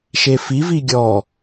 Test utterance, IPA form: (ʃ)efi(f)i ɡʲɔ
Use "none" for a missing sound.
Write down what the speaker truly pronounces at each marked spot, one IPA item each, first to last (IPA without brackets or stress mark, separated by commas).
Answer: ʃ, v